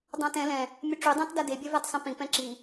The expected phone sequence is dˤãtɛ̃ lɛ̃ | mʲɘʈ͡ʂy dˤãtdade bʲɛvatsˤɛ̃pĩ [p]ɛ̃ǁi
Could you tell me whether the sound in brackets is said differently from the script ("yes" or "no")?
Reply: no